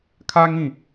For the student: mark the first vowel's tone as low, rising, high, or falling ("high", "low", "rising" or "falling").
high